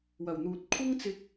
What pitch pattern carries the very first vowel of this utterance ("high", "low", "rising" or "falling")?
low